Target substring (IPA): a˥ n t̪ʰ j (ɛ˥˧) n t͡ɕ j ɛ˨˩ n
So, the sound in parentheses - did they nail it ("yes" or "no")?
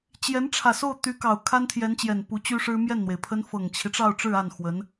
no